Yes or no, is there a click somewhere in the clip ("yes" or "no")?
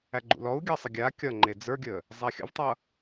yes